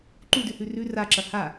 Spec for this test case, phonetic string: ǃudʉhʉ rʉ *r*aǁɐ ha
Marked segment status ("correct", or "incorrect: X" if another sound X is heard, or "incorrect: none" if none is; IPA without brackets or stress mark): correct